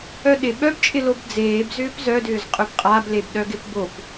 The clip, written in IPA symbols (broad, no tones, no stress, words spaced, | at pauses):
œɗɪ ɓœbt͡ʃʼɪlob d͡zeːb zʏːpzœdʏːz qʼʏbqʼablebɗœ ɡɪpbop